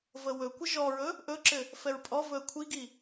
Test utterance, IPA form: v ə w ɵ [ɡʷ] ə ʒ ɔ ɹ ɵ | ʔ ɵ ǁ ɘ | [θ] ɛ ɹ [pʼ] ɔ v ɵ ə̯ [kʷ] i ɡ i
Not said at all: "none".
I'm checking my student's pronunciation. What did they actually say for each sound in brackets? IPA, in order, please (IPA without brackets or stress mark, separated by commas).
kʷ, f, pʼ, kʷʰ